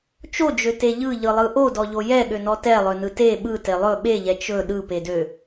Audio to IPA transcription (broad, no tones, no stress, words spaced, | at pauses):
t͡ʃod͡ʒøte ʎɯʎɯlˠɯ ʔodɔʎo jɛɠønɔ tɛlˠønɯ te ɓɯte lˠɵ ɓeʎɛ t͡ʃɵ ɗɯpedø